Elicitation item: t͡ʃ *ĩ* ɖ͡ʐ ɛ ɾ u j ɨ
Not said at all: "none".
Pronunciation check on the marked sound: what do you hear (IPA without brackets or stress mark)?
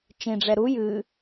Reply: ĩ